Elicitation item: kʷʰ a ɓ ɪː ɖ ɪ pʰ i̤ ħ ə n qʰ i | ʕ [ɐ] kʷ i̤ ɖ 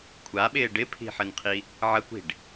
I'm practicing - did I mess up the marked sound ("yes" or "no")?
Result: no